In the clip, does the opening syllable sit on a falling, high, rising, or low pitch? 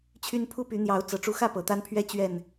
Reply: high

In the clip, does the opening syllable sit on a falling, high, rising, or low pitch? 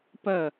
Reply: falling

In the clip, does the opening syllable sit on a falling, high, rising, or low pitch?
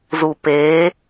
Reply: low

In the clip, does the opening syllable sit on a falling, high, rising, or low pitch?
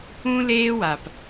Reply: high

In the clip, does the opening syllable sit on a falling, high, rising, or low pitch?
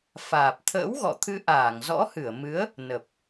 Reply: low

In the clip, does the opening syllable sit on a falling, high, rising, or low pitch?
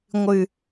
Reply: high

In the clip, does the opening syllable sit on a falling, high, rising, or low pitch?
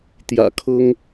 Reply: low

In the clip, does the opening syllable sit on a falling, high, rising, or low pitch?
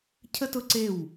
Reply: high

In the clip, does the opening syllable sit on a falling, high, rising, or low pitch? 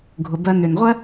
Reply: low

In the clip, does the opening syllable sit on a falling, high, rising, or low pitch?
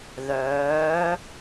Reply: rising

